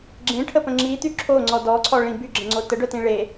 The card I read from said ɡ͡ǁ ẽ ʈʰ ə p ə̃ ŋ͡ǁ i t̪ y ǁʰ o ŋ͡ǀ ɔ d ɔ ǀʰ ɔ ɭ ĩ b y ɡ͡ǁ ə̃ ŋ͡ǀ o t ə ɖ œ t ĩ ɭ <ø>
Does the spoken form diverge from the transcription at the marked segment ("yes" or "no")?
yes